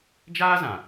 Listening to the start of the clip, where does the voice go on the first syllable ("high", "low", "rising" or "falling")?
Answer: high